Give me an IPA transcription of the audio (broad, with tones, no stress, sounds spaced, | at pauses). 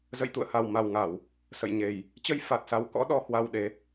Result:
z ə̰˧˨ j t̪ ṵ˧˨ ə̯ h a˨˩ w m a˨˩ w ŋ a˧˩˨ w | s ə̰˧˨ j ɲ e˨˩ j | t͡ɕ ə˧ j f a˨˩ t̚ s a˨˦ w k ɔ̰˧˥ ɗ ɔ˨˦ h w a˧ w ɗ e˨˦